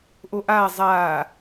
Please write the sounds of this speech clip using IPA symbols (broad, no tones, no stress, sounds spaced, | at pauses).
ʔ o ʔ aː zˤ aː